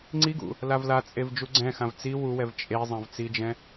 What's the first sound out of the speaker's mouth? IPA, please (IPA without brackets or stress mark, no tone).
ŋ͡ǀ